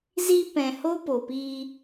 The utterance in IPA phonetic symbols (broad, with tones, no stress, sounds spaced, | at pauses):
z i˧ p ɛ̃˨ h o˦ p o˨ p iː˧